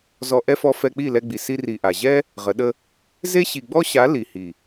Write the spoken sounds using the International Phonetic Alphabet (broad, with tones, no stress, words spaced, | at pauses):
zɔ˧ ʔɛ˦fɔ˧ fɛ˧k͡pi˦˨ lɛ˧ɡ͡bi˨ si˧ri˨ ʔa˨ ʑɛ˦ | ʁə˨˦ɗə˦ | ze˦ɕi˨ɡ͡bɔ˦ɕa˨˦ li˨hi˨